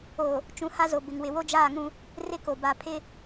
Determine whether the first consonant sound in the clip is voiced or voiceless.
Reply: voiceless